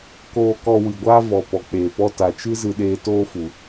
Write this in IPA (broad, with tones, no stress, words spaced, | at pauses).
koː˧ kɔ˧ wɨ˨ɡʷaː˦vɔ˨ pɔ˨k͡peː˨pɔ˦ ta˨t͡ʃɨ˦ zɨ˧ɗeː˧toː˦fu˨